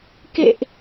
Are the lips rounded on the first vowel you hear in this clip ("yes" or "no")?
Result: no